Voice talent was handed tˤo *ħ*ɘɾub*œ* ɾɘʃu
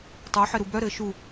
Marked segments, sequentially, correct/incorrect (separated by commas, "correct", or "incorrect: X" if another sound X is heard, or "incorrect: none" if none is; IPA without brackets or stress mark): correct, correct